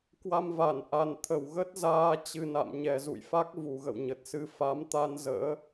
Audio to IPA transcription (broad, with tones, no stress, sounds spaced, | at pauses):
k w a˧ m v a˧˩ n ʔ a˨˩ n t̪ʰ ə˧˩ w ɣ ə˦˥ t̚ z aː˧ t͡ɕ ɨ˨˩ n a̰˧˨ m ɲ ɛ˨˩ z ṵ˧˨ j f a˦˥ k̚ v u˨˩ ɣ ə̰˧˨ w ɲ ə˨˩ t̚ s ɨ˧ f a˨˦ m t̪ a˧ n z ə̰ː˧˥